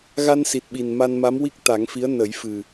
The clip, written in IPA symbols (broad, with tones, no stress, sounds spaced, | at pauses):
ɣ a˧ n s i˨˩ t̚ ɓ i˨˩ n m a˧ n m a˧˥ m w i˦˥ k̚ t̪ a˨˩˦ ŋ f i˧˥ ə̯ n ə˨˩˦ j f ɨ˨˩